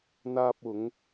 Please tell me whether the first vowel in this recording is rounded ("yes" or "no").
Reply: no